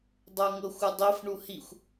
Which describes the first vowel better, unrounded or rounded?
unrounded